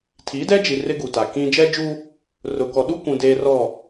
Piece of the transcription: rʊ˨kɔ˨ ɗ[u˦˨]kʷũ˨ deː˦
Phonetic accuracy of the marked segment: incorrect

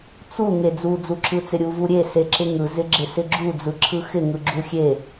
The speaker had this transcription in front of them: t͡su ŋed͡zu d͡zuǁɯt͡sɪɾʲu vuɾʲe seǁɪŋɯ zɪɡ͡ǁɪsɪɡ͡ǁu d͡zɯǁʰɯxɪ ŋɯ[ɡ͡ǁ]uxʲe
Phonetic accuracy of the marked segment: correct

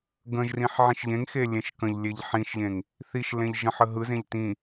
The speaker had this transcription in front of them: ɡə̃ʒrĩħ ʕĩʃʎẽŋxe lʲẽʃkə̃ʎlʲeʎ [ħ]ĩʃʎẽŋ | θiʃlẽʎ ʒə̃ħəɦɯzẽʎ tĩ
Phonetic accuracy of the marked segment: correct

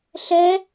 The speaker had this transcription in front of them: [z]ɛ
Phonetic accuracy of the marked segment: incorrect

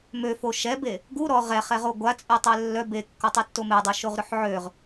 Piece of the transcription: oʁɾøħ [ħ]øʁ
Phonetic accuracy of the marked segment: incorrect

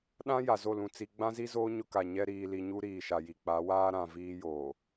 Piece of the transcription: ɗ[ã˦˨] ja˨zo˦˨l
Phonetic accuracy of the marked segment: incorrect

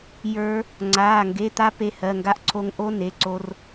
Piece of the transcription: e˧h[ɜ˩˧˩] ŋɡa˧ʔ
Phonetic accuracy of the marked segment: correct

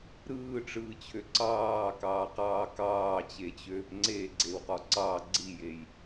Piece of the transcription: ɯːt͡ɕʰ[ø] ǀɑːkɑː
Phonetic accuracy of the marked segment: correct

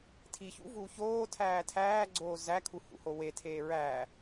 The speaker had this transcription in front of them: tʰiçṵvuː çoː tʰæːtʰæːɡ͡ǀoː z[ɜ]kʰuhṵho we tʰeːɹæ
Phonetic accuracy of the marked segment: incorrect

